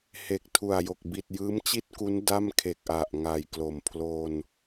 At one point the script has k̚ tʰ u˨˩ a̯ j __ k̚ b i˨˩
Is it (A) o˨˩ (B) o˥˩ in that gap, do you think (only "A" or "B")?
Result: A